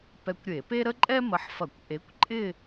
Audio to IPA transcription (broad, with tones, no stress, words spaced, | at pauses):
pɛ˧kʷɾʲe˧˩˧pe˥ ɾə˥ǃʼɛ˥mə˨˥ħfɐ˧˩˧kʷ ʔe˨˥kʷǃʼɪ˥˧